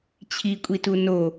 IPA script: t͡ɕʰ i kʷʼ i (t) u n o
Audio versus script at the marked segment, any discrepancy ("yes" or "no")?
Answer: no